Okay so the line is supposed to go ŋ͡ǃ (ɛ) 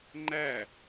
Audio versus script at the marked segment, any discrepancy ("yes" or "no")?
yes